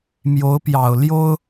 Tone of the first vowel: rising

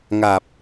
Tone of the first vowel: low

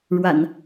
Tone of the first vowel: low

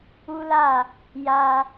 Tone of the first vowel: high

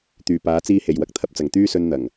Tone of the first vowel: low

